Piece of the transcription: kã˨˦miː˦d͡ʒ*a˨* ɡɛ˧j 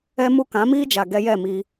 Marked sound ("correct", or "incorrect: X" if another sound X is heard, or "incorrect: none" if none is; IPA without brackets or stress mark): correct